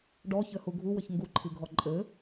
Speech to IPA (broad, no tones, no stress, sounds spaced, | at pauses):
ɖ ɔ ç ɘ h u ɡʱ u w ɘ ç ŋ ɡ u ǃʰ i ɡʱ ɔ ǃʼ ɘ